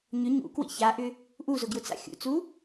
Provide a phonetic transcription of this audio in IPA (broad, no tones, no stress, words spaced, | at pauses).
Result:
ɲʏ ɲṵkwḭ çaʔʏ | ʔuzʊɡjʊt͡sa̰ xʲṵt͡su